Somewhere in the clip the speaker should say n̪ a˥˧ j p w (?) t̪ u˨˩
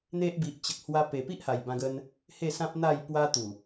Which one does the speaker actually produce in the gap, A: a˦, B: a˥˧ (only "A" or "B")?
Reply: A